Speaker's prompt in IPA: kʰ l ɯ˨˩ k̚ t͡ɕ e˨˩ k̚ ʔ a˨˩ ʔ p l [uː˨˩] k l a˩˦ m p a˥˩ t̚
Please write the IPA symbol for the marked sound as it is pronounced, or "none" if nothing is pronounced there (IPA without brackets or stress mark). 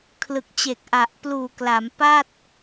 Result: uː˨˩